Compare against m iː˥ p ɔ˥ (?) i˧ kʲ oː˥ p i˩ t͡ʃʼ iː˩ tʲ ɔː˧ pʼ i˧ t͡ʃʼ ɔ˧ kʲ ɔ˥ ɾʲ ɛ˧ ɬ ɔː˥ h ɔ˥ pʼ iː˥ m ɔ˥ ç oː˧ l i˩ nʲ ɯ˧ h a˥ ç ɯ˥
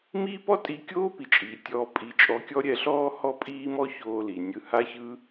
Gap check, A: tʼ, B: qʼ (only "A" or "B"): A